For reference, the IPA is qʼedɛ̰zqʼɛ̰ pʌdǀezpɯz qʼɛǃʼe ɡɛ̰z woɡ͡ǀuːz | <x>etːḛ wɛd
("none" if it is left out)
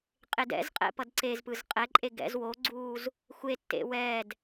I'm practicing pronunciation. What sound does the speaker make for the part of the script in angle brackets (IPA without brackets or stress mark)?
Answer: xʷ